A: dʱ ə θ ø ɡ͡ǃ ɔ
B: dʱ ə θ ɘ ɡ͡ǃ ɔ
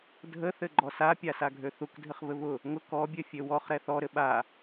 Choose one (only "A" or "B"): B